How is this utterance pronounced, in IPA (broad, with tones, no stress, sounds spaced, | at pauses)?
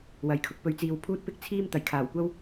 w ɐ˨ j kʰ ʊ˨˥ k̚ p ɵ˧ ɥ t͡s iː˧ w pʰ uː˧ t̚ p ɪ˧ k̚ t͡sʰ iː˧ m t̪ ɐ˨˩ j kʰ aː˨˩ w kʷ ɐ˥ w